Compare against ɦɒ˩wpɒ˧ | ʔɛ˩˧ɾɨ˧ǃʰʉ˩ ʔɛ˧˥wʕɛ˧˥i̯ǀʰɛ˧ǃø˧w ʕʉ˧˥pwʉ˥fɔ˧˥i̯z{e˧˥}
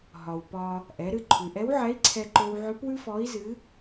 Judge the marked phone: incorrect: ɨ˧˥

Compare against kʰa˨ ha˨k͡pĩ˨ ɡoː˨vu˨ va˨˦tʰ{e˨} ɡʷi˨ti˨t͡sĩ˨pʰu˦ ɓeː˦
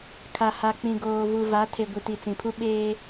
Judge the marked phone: correct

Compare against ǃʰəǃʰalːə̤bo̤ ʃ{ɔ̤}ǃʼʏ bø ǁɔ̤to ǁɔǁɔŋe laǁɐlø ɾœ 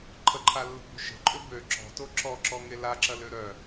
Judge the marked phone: incorrect: ə̤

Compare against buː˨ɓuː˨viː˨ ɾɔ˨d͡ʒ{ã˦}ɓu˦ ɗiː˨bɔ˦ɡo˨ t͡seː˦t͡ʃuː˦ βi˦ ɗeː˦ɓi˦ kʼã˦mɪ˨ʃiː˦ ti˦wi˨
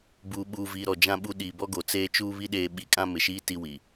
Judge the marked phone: correct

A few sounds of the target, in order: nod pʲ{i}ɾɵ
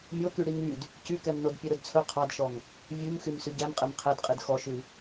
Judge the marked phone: incorrect: e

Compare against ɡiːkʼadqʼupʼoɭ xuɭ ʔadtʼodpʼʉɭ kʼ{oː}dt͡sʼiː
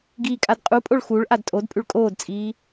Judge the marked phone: correct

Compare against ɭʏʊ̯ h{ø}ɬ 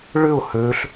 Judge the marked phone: correct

